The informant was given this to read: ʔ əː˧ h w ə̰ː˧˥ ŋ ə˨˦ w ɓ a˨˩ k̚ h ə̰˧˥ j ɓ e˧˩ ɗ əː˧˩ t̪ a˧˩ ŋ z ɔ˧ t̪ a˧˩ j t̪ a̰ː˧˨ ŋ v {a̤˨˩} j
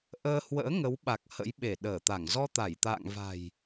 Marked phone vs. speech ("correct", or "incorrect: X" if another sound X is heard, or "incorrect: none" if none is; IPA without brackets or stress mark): correct